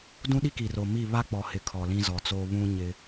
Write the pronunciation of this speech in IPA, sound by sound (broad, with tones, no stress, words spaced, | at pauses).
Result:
dũ˦ɗi˦ki˨ro˨ mi˦˨ βa˦k͡pɔ˨hɪ˨ kʰɔ˨lĩ˦zɔ˨t͡soː˦ βũ˦ ɲɪ˦